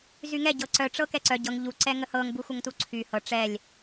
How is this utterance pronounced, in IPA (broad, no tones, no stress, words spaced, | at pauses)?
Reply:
zyŋɛ ɟɤǀœ ʈ͡ʂɤkɛǀœ ɟɤŋ ʎu ǀɛŋəhɤŋ buxʷəŋtuǀʰy hɤ ʈ͡ʂɛlʲ